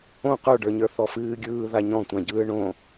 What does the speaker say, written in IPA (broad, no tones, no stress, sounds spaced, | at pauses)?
õ q ə˞ ɖ ə˞ ɲ ə˞ θ ɔ f ɨː ɡʲ ɯː ð a ɲ ɔ̃ tʷ ã ɟ ɯː ɳ õ